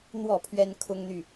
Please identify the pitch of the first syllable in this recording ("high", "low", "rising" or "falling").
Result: falling